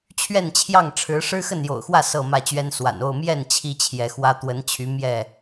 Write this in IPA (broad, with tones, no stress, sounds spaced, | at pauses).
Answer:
t͡ɕʰ ɥ ɛ˥˨ n t͡ɕʰ j ɑ˥˨ ŋ ʈ͡ʂʰ ɻ̩˨˦ ʂ ɻ̩˦ x ə˥˨ n j o̰˨˩ ʊ̯ x w ä˥˨ s ɤ˥˨ m ä˥˨ t͡ɕ ɥ ɛ˦ n s w a̰˨˩ n o˥˨ ʊ̯ m j ɛ˥˨ n t͡ɕʰ i˦ t͡ɕʰ j ɛ˨˦ x w ä˦ t̪ w ə˨˦ n t͡ɕʰ y˨˦ m j ɛ˥˨